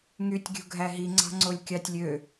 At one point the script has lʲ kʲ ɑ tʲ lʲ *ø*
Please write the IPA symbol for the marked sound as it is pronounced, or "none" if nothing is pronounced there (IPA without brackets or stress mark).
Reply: ø